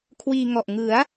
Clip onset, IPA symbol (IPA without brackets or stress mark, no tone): kʰ